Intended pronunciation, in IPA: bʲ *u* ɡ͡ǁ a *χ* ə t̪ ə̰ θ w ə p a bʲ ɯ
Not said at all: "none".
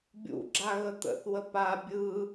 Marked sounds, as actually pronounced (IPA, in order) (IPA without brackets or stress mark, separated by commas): ṵ, ɣ